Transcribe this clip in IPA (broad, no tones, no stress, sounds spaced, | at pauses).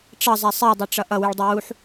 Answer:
ʈ͡ʂ ʌ zˤ ɛ sˤ i dˤ ɛ ʈ͡ʂ ʌ ʔ ʌ w y ɭ dˤ ʌ w u ħ